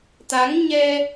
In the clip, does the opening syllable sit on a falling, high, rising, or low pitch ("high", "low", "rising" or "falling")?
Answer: rising